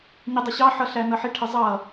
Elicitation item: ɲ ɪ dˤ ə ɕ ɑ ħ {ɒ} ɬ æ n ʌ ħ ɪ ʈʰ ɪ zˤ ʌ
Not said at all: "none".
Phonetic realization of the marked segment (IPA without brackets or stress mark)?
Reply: ʌ